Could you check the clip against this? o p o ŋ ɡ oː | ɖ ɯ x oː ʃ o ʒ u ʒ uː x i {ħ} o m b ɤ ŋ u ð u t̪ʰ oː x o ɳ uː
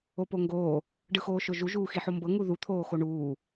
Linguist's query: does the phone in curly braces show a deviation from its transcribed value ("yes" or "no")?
no